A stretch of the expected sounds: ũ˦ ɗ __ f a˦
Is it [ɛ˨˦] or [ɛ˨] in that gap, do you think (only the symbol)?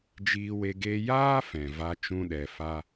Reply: ɛ˨